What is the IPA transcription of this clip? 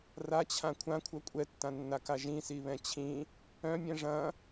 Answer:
r a t͡ɕʰ ã kʷʰ ã kʷʰ œ kʷʼ ɛ tː ã nː a k a ʒ ĩ s i β ɛ̃ t͡ɕʰ ĩ | œ̃ mʲ ɛ̃ ʐ ɐ̃

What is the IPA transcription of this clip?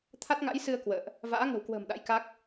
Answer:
t̪ʰ a˦˥ t̚ ŋ a̰˧˥ j s ɨ˧ ə̯ k w ə̰ː˧˨ ʔ | v a̰ː˧˥ ŋ ə̤˨˩ w k w ə̤ː˨˩ m ɗ a̰˧˥ j k a˦˥ k̚

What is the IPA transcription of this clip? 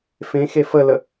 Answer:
f ẽ x e f ə l ə

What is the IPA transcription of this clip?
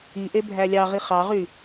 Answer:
i ʔ e bʱ æ lʲ ɑ ʁ i χ ɑ ʁ y

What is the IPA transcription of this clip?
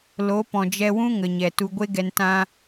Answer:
l o˨˦ p ɔ̃˨ d͡ʒ ɛ˧ w ũ˦ ŋ ə˨ ɲ ɛ˨ t u˨ ɡʷ e˧ ɡ ɛ˨ n t ã˦

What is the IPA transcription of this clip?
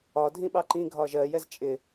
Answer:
ɒ dʱ ĩ ɓ ɑ ǃ ĩ ɡʱ ɒ ʒ ɜ j ɛ z t͡ʃʼ ɪ

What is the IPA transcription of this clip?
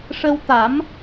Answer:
ʂ ə˧ w t̪ a˨˩˦ m

